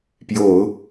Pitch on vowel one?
low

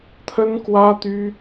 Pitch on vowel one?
high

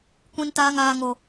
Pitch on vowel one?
high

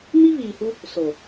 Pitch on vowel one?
high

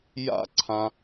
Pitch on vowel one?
high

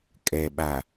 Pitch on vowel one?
low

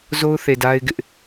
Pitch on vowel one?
high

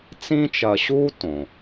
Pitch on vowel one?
high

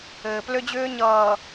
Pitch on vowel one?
low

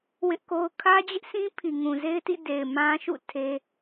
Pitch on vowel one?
high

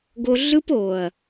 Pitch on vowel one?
high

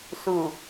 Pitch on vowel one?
low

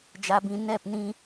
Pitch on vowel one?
low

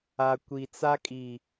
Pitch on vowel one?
low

